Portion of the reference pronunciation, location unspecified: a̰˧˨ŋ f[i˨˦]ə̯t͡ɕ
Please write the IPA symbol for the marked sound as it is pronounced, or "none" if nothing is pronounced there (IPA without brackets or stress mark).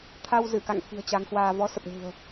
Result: i̤˨˩